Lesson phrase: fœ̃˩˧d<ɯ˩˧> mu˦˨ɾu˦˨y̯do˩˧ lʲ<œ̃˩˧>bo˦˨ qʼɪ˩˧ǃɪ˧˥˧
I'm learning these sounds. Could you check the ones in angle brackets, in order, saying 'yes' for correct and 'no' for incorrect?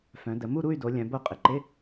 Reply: no, yes

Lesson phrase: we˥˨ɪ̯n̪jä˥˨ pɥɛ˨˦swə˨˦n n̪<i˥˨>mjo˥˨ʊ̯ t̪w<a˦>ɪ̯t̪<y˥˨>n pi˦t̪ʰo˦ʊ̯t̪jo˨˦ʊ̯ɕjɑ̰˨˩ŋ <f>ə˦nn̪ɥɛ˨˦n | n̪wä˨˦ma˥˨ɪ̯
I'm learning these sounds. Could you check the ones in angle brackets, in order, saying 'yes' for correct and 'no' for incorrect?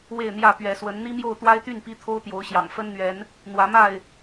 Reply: no, yes, yes, yes

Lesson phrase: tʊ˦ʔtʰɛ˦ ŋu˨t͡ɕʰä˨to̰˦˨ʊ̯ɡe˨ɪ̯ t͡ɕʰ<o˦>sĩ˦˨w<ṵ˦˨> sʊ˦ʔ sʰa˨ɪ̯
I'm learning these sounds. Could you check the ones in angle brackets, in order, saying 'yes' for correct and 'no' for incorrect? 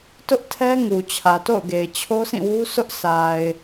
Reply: yes, no

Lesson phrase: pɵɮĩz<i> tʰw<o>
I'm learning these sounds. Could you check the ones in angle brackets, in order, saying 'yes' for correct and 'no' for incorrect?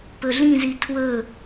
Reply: yes, no

